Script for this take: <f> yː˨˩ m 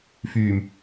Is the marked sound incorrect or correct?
correct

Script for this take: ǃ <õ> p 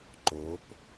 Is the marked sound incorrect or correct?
incorrect: o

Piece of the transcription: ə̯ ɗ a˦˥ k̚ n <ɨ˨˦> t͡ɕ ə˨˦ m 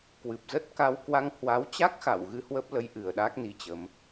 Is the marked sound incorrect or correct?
incorrect: i˨˦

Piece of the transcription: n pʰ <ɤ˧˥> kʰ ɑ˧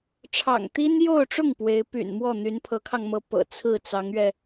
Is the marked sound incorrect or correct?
correct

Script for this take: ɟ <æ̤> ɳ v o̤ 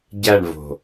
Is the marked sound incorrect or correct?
incorrect: æ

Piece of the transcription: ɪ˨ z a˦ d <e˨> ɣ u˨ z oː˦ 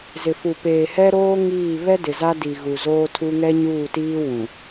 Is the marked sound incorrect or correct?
incorrect: i˨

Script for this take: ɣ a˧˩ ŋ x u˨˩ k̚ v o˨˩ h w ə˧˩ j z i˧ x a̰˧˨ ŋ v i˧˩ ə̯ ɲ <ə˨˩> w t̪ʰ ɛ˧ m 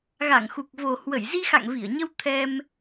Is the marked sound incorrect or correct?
incorrect: ə˧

